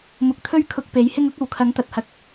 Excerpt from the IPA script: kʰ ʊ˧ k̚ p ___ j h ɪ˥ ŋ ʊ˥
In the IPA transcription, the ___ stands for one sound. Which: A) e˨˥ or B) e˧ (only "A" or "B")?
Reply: A